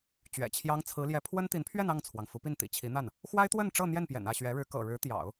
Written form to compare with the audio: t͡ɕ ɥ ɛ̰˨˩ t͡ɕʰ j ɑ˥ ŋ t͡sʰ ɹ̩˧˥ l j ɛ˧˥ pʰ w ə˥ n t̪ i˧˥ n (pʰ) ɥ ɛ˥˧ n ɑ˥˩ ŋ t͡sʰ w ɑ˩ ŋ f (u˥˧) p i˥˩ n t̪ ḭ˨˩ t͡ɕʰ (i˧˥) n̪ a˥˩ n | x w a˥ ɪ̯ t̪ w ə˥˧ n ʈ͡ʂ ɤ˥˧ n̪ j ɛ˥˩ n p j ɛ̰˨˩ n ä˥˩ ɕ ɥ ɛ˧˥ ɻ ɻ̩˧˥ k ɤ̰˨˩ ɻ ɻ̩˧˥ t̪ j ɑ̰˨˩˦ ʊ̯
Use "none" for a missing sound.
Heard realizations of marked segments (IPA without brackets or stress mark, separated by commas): pʰ, u˧˥, i˧˥